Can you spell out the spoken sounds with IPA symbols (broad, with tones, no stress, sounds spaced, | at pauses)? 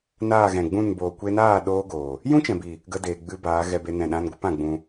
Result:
n aː˦˨ ɣ ɛ̃˨ ɡ͡b ũ˦˨ n b oː˨ kʷ e˧ n aː˦˨ ɗ oː˦ ɡ oː˨ | j ũ˦ t͡ʃ ɛ̃˨ b i˨ | ɡ ə˧ d eː˨ ɡ͡b ɨ˧ b aː˨˦ ɣ ɛ˦ b e˦ n ɛ̃˦˨ ɗ ã˦ n ɡʷ ɨ˦ p ã˧ ɡ͡b ũ˧